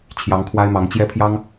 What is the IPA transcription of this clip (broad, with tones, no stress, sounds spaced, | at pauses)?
t͡ɕʰ j ɑ˨˦ ŋ kʰ w a˦ ɪ̯ m ɑ˨˦ ŋ t͡ɕ j ɛ˦ pʰ j ɑ˦ ŋ